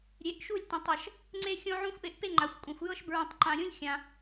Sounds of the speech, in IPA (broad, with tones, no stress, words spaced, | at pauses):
ɾʲe˨˦ʔʃu˦˨lʲ tõ˨tˤɤ˨ʃ | ŋ͡ǀe˦ xʲõ˦ʕũ˦xʷʔe˧ʔpe˦ ŋ͡ǃa˨xʷkʷʼẽ˨xʷ jɤ˦ʃbɹũ˨tˤǃã˨ ɾʲũ˦lʲxʲã˨